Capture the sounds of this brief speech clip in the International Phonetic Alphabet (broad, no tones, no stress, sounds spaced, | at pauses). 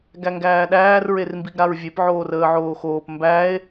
ɡ æ ŋ ɡ æː ɗ æː r ɹ e r m b i ɡ ɾ a ɹ vʲ e p ʕ oː r əː ʕ oː x oː p m b æ e̯